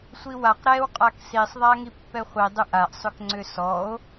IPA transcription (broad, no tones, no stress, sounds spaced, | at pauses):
sʷ i w a q ɾ ɛ w qʼ a k s i sˤ ðˤ a ŋ i pː ɛ χʷ i dˤ ʏ ʔ a ʔ sˤ ʏ k ŋ͡ǀ ʏ s ɔ o̯